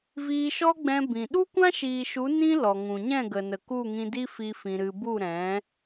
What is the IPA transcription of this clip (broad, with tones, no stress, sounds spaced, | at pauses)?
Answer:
v iː˧ ʃ ɔ˦ ɡ͡b ɛ̃˧ b ĩ˨ ɗ u˦ kʷ ã˦ ʃ iː˨ ʃ u˨˦ n ĩ˦ l ɔ˨ ŋ ũ˨ ɲ ɛ̃˦˨ ɡ ə˨ n ə˨ k u˦˨ ŋ ĩ˧ d i˦ f i˦ f ĩ˧ ɾ ɨ˧ b u˦˨ ɾ ɛ̃˨˦